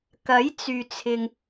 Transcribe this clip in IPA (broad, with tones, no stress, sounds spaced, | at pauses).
k ɐ˨˥ j t͡s yː˨ t͡sʰ ɪ˨ ŋ